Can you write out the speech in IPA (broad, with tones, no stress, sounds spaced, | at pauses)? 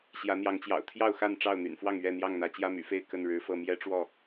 ɕ j ä˨˦ n̪ j ɑ˨˦ ŋ t͡ɕ j ɑ̰˨˩ ʊ̯ t̪ʰ j ɑ˥˨ ʊ̯ x a˥˨ n ʈ͡ʂ ɑ˥˨ ʊ̯ n̪ y̰˨˩ n f w ɑ˥˨ ŋ ɥ ɛ˥˨ n̪ j ɑ˥˨ ŋ n̪ ä˨˦ t͡ɕ j ä˦ m y̰˨˩ f e˥˨ ɪ̯ k ə˥˨ n ɻ ɻ̩˨˦ f ɤ˥˨ m j ɛ˦ ʈ͡ʂ w ɔ˥˨